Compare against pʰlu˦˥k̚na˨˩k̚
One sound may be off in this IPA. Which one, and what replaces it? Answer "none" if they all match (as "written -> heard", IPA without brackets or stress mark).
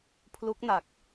none